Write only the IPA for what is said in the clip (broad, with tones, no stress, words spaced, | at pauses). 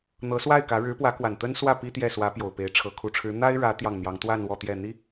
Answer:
n̪ɤ˧˥swa˥˩ɪ̯kä˧˥ ɻɻ̩˧˥pwä˧˥kwa˨˩n t̪ə˥nswä˥˩ pi˥t̪jɛ˥˩ swä˧˥pjo˨˩ʊ̯ pe˧˥ɪ̯ʈ͡ʂʰɤ˧˥ kʰu˨˩ʈ͡ʂʰɻ̩˧˥ n̪a˥ɪ̯ɻä˧˥ t̪jɑ˥˩ŋn̪jɑ˧˥ŋ t̪wa˥˧n wɔ˥˧t̪jɛ˥˩n̪i˥